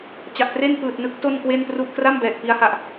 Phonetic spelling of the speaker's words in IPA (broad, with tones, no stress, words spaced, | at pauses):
t͡ɕa˨˩ʔtre˥˩n pɯː˨˩t̚nɯ˦˥k̚ to˥˩nkwe˥˩npru˥˩ʔ kra˥˩m bɛː˨˩k̚pi˦˥a̯ha˨˩ʔ